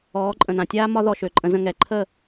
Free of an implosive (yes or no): yes